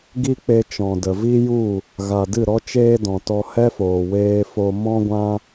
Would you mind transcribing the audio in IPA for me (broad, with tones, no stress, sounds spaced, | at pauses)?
ɡ i˦ k͡p e˧ t͡ʃ ɔ̃˨ d ə˨ v i˦ j u˦˨ | ɣ a˨ d ɨ˦˨ ɾ ɔ˦ t͡ʃ eː˦ d ɔ̃˨ t ɔ˧ h ɛ˦ f oː˨ w eː˧ f o˧ m ɔ̃˦ ɡʷ ã˦